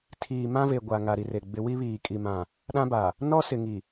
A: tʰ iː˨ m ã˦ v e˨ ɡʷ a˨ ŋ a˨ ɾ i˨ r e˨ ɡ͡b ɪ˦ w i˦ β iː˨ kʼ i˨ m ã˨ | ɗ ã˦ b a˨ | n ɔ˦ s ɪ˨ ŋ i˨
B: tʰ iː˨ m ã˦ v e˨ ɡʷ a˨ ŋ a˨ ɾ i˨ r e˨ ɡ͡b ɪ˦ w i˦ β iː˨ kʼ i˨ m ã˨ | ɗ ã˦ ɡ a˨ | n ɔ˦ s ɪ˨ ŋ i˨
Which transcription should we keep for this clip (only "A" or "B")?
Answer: A